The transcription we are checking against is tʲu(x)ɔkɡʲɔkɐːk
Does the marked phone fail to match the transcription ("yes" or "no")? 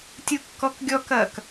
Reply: yes